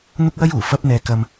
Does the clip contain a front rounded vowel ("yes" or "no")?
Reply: no